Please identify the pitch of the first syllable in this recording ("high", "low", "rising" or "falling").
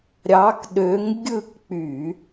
rising